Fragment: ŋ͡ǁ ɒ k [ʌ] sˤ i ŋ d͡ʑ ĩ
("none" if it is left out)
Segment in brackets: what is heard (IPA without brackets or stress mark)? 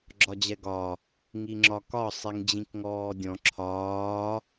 ɒ